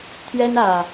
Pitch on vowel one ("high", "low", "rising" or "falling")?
high